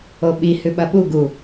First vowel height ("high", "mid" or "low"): mid